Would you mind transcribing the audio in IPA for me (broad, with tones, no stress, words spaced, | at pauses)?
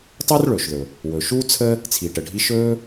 tˤa˥r ɭɵː˩ʃðɵ˩ | wɵ˩ ʃuː˥t͡sʰə˥ | t͡sʰi˩ʈə˩ɖʱi˧ ʃɵː˥